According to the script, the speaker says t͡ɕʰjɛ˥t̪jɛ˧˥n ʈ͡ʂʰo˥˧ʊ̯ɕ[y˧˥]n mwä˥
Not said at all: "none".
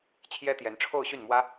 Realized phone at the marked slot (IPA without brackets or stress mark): y˥˩